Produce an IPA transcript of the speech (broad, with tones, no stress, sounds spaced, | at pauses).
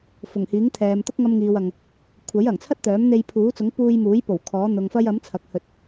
f ʊ˨˩ ŋ h iː˨˥ ŋ t̪ʰ ɛː˨ m t̪ ʊ˥ k̚ ŋ ɐ˧ m ŋ iː˨ w ɐ˨ ŋ | kʷʰ ɐ˨˥ j ɐ˨˩ ŋ t͡sʰ ɐ˥ t̚ t̪ œː˨˥ m n̪ e˧ j pʰ uː˨˥ t͡s ʊ˨˥ ŋ p uː˧ j m uː˨˥ j p o˨˩ w kʰ ɔː˨˥ n̪ ʊ˨ ŋ f ɐ˧ j ɐ˨˥ m t͡sʰ ɐ˨ k̚ h ɵ˧ t̚